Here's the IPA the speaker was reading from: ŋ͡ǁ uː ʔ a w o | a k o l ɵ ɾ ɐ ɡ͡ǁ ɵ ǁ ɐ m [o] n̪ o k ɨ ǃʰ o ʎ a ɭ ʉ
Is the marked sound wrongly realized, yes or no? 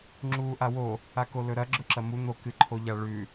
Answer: yes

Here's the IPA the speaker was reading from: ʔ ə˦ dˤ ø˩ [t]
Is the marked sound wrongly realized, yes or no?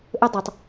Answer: yes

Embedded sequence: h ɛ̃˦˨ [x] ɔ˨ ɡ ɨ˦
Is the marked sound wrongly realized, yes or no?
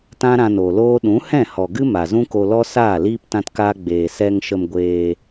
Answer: yes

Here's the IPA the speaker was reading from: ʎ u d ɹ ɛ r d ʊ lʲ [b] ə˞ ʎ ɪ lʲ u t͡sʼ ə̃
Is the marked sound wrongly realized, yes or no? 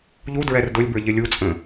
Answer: no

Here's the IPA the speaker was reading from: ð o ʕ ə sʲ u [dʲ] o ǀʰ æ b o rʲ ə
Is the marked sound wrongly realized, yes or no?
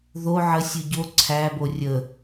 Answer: yes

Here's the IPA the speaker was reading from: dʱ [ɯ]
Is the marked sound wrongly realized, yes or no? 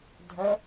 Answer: yes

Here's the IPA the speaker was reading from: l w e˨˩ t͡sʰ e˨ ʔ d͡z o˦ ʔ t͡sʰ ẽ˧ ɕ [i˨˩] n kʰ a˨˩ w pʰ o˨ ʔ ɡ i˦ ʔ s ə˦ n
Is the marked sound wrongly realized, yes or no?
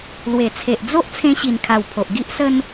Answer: no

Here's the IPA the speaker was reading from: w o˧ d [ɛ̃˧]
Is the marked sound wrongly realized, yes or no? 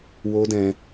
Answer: no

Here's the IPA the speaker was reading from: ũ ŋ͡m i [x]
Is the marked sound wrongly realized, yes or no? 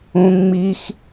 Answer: no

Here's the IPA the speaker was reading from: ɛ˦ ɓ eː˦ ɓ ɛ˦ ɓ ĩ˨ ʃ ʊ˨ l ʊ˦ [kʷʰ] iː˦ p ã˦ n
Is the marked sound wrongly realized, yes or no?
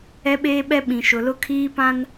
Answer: yes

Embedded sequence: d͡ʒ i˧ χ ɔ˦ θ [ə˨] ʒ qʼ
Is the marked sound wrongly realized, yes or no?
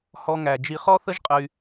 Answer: yes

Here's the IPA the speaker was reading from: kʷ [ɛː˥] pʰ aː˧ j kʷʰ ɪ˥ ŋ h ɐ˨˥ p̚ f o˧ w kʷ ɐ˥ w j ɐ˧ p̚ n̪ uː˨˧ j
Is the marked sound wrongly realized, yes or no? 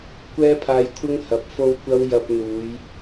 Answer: no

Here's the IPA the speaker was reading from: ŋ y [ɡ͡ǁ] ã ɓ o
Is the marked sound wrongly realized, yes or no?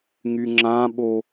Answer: yes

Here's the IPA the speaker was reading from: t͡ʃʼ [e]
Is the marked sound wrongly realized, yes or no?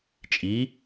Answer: yes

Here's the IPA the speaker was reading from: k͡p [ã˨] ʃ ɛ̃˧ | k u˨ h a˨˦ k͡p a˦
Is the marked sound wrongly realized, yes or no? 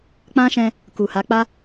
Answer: yes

